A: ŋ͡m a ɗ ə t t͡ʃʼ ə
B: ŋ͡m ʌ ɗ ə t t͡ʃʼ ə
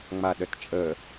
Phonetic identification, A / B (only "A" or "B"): A